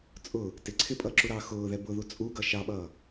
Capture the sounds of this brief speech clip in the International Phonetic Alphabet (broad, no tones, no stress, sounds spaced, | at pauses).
t͡sʼ ʊː | t ɪ ǀʰ ɪ pʼ ʌː ǁ u ɾ ɑː x ʊː ð ɛ b ʊ ð u t͡sʼ u ɡ ʌ ʃ ɑ ɓ ʌː